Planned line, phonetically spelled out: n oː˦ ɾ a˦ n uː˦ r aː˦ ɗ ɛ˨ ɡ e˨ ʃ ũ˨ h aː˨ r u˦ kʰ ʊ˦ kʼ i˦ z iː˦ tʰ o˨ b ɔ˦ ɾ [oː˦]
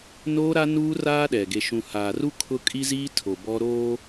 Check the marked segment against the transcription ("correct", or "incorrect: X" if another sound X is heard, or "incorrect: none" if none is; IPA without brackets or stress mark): correct